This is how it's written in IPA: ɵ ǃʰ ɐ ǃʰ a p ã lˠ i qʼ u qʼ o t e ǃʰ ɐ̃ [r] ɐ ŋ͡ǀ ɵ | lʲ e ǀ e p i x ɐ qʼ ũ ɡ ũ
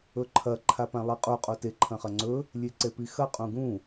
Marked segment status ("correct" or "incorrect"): incorrect